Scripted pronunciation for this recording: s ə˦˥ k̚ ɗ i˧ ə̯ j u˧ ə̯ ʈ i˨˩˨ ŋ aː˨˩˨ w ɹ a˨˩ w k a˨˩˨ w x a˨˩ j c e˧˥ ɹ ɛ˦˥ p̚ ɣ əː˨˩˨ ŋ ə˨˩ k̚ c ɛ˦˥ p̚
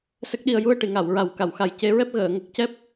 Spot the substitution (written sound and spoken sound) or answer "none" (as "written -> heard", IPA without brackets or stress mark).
aː˨˩˨ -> a˨˩˨